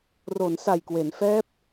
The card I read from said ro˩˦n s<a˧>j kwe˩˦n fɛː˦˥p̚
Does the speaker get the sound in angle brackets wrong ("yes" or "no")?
yes